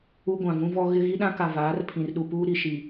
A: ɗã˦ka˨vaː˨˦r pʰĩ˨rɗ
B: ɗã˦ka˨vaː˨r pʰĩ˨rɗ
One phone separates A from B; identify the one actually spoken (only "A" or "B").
A